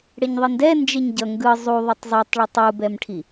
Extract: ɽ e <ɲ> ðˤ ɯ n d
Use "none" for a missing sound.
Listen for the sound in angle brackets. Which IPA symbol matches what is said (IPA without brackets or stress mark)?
ɲ